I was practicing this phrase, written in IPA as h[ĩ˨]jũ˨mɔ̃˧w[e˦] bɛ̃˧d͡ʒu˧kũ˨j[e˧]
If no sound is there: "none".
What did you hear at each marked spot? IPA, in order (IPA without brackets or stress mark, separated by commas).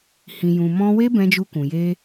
ĩ˨, e˦, e˧